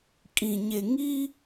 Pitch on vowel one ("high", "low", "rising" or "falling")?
low